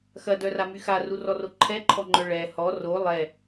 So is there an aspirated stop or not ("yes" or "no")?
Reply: yes